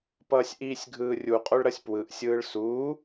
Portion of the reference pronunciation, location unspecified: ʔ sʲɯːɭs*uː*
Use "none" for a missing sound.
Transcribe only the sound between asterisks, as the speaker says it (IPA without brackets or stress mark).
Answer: uː